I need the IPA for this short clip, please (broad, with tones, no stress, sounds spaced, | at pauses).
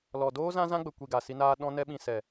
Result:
l ɔ˨ d oː˦ z ã˦ z ã˦ ɡ͡b ə˨ kʷ i˨ ɡ a˨ s i˧ n aː˦ ɗ ɔ̃˦ n ɛ˦ ɓ ĩ˧ s ɛ˨